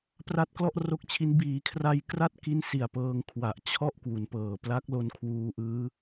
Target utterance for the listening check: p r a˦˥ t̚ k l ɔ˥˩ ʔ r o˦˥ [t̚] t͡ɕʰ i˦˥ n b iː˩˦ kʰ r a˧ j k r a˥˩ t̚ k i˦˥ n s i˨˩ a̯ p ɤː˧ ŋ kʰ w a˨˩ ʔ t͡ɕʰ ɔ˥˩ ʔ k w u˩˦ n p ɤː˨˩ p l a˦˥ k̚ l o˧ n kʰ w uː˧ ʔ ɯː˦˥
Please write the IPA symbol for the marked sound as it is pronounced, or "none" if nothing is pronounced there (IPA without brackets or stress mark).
k̚